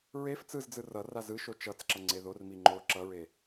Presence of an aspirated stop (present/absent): absent